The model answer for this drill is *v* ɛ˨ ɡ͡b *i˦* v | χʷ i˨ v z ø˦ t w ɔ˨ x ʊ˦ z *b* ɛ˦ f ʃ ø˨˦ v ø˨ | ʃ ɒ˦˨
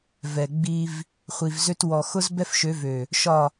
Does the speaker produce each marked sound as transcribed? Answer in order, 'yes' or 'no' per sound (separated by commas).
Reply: yes, yes, yes